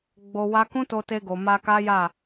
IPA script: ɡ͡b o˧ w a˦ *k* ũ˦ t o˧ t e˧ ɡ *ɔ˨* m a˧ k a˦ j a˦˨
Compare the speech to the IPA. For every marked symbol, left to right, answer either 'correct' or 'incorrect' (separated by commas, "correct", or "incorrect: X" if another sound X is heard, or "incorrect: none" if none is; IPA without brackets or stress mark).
correct, incorrect: o˨